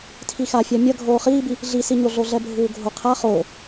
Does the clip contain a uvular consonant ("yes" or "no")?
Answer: yes